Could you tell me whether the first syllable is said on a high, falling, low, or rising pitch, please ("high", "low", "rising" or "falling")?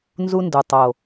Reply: high